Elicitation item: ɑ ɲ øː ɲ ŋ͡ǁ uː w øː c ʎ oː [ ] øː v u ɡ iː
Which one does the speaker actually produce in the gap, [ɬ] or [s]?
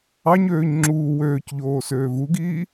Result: s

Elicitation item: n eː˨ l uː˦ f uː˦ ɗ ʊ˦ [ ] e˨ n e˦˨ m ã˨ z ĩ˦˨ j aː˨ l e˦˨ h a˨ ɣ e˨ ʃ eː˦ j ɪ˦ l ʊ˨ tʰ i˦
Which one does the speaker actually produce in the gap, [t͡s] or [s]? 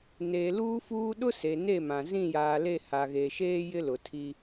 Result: s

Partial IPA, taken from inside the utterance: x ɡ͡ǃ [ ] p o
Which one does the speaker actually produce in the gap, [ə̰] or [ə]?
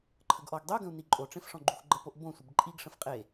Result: ə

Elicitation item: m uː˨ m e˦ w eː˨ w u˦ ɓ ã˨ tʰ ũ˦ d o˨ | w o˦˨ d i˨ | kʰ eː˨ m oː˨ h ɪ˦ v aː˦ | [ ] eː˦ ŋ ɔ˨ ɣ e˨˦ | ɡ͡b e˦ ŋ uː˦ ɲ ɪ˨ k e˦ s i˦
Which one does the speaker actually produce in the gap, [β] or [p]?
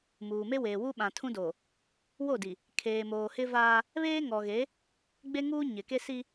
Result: β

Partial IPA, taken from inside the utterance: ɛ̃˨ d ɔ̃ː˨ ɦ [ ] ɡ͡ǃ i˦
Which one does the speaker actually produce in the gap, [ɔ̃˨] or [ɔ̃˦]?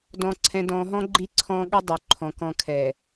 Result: ɔ̃˦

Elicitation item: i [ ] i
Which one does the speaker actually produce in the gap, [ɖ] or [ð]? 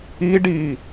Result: ɖ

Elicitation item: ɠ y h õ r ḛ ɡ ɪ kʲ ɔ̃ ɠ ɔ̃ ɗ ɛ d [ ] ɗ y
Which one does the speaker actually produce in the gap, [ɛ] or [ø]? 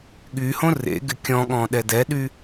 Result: ɛ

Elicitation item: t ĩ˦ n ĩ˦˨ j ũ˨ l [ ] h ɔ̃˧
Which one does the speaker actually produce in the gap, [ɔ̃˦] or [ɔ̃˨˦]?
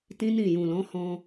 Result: ɔ̃˨˦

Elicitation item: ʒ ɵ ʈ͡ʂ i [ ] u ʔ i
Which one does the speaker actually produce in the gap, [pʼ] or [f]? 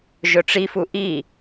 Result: f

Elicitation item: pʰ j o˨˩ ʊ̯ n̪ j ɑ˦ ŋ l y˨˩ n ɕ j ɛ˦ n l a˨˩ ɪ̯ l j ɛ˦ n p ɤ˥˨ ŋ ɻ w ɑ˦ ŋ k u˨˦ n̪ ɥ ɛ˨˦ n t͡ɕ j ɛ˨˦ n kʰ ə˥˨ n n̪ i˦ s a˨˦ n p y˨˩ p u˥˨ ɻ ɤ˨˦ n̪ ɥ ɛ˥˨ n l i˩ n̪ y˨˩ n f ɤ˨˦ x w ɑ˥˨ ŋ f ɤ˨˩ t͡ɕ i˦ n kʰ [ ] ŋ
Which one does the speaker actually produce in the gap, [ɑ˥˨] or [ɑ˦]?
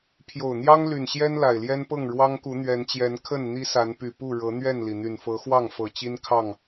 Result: ɑ˥˨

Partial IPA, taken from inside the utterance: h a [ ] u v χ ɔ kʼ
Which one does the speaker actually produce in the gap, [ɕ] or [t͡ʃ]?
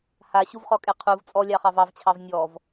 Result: ɕ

